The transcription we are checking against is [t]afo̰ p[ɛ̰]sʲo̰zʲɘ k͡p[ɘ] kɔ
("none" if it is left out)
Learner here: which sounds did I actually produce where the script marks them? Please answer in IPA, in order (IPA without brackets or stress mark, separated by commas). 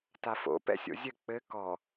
t, ɛ̰, ɘ